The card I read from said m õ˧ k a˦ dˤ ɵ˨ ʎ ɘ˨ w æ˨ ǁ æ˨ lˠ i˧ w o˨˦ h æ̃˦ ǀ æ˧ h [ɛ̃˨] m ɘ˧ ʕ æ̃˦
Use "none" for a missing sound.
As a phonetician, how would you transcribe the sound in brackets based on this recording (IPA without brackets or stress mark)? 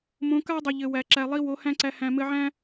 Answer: æ̃˨